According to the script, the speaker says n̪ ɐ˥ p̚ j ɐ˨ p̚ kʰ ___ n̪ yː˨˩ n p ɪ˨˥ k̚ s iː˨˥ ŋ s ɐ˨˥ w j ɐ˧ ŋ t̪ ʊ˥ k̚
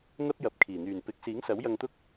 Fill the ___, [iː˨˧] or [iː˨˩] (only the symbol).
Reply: iː˨˩